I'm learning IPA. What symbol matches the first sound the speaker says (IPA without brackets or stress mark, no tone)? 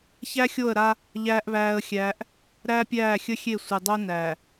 ç